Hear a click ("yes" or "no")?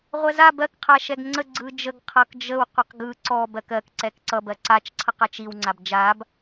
yes